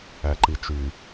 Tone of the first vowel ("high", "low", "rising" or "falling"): low